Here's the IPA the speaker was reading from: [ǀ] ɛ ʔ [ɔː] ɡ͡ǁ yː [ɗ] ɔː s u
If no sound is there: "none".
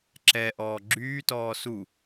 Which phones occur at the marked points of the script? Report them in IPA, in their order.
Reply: ǁ, ɔː, t

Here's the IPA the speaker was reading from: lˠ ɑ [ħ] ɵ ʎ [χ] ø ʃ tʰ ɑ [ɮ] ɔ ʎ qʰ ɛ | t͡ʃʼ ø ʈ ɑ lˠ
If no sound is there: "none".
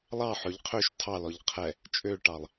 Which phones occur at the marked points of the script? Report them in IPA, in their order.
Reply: ħ, qʰ, l

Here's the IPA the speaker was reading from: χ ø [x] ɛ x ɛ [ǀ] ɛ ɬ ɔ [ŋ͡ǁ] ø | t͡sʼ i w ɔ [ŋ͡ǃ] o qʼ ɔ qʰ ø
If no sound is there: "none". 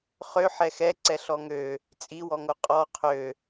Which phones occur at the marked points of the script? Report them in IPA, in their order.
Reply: ħ, ǀ, ŋ, ŋ

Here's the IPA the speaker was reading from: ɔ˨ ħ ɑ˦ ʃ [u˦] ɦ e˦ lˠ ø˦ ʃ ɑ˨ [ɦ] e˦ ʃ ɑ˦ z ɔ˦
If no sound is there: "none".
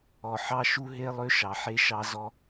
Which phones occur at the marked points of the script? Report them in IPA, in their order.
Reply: u˦, ħ

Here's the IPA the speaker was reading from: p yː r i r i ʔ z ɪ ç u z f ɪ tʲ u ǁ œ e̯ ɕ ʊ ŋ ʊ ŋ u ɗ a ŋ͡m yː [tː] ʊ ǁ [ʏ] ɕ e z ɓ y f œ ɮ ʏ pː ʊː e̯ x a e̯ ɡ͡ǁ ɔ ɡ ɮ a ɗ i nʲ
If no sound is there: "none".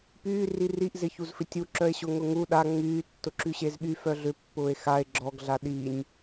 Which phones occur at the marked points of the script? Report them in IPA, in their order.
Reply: tː, y

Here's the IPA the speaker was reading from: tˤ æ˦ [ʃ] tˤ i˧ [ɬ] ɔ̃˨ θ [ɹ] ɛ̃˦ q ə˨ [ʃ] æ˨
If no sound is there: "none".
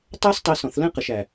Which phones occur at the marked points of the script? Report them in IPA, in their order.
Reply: s, s, l, ʃ

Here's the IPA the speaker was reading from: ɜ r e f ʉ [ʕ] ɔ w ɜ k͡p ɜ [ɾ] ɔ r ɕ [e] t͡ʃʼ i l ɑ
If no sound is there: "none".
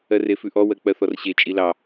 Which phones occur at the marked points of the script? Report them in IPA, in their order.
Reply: ʔ, θ, e

